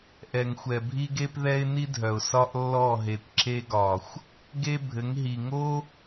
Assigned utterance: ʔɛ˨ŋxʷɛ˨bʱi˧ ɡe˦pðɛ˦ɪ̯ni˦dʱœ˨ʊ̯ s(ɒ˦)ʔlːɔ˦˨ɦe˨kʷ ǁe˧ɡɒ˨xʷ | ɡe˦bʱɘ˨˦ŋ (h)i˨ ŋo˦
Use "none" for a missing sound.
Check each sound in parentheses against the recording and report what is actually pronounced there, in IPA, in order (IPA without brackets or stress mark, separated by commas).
ɒ˦, ɦ